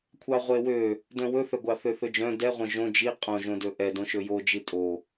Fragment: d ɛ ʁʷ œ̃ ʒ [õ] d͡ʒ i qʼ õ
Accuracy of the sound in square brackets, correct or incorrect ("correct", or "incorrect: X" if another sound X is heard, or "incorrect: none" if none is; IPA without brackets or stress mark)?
correct